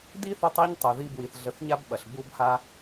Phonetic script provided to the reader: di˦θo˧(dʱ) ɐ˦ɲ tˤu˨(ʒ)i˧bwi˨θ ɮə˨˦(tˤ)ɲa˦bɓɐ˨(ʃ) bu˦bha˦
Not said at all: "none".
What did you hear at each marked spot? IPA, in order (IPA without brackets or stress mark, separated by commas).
tˤ, ð, θ, ɬ